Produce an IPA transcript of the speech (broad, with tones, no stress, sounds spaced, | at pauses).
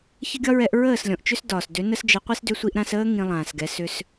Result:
ç ə˦ ɡʲ ɒ˦ ɹ ɛ˧ ʔ ɹ əː˦˨ s lʲ ɔ̃˨ ʔ t͡ʃ ʏ˦ s d ɒː˨ s d ʏ˨˦ n ə˧ s d͡ʒ ə˨˦ qʷ i˧ s d ʏ˧ sʷ i˧ ʔ ɾ ã˧ s əː˧ ŋ ĩ˧ lˠ ãː˨ s ɡ ɛ˨˦ s ʏ˧ s